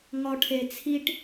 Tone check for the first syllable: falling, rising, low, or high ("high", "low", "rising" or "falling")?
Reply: low